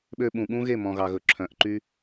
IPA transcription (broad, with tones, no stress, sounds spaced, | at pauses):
ɓ ø˧ ɓ ũ˨ ɠ ũ˦ ɣ e˦˨ m ɔ̃˨ ɣ ɑ˨ ɣ ɵ˨ ǁʰ œ̃˨˦ ʔ ǃ y˦